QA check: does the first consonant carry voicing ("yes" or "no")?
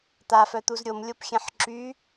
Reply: no